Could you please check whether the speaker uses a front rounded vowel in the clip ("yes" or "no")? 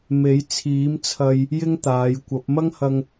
no